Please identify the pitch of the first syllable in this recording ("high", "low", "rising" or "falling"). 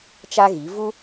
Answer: high